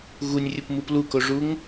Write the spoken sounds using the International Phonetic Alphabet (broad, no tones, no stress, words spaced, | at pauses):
ɣunʲrʲɯpmɯp lukoʐuŋ